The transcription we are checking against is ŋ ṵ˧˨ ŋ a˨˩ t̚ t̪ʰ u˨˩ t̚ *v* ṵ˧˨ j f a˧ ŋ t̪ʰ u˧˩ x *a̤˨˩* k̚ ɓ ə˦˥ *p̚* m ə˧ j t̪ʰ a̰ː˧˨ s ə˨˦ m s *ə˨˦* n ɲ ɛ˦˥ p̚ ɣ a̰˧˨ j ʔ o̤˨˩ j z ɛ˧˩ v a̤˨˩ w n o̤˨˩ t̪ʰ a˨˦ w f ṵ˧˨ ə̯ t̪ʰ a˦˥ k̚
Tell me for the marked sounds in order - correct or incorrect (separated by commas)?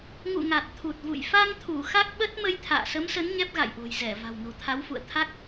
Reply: correct, incorrect, incorrect, correct